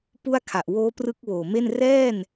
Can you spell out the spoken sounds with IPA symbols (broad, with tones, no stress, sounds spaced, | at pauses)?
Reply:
p u˥˩ a̯ kʰ a˨˩ ʔ w oː˦˥ p r ɯ˦˥ k̚ w oː˨˩ m e˥˩ n r ɛː˥˩ n